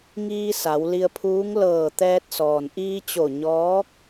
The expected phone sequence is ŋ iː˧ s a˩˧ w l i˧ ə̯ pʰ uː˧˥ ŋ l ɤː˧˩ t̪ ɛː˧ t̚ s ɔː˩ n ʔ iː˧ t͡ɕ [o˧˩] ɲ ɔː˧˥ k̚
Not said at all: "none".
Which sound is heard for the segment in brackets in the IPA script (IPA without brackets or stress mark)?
o˧˩